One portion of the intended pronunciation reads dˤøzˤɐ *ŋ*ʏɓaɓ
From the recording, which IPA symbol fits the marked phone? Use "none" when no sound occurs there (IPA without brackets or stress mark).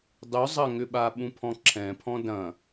ŋ